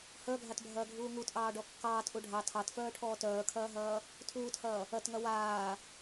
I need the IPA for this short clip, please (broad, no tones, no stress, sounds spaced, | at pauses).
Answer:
h œ ɡʱ a t bʱ ɐː ɡʱ uː ŋ u t ʔ ɑː ɖ ɔ kː ɑː t ʔ u ɖʱ ɑ tʰ ɑ t f œː ʈʰ ɔː t œː kʰ ɐː ɦ ɐː | tʰ uː t h ɐː | ɐ t ŋ ɐ w aː